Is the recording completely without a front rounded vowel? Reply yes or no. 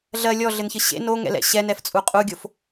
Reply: yes